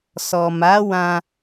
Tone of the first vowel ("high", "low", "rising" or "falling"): low